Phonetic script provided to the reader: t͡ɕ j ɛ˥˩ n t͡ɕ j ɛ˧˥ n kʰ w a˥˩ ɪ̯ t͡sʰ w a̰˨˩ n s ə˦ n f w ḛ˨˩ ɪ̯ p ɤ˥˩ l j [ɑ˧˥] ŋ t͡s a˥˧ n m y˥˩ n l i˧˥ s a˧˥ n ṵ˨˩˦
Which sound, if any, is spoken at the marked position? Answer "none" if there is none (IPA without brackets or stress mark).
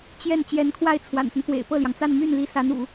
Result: ɑ˩